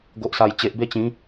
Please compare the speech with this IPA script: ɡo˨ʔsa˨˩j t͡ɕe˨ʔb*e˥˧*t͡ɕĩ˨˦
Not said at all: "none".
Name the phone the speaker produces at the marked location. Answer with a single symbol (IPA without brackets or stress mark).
e˥˧